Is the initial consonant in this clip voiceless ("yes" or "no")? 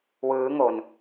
no